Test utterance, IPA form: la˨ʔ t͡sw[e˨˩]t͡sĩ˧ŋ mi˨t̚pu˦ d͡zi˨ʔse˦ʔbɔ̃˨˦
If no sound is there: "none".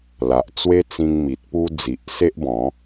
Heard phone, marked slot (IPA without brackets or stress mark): e˦